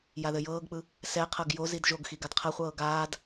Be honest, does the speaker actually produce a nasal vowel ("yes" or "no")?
no